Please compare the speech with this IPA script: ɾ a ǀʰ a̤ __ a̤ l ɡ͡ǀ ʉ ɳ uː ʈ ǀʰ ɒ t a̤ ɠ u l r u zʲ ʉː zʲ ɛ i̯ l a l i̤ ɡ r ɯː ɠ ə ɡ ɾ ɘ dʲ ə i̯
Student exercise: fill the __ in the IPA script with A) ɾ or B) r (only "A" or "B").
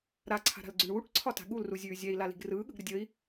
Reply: A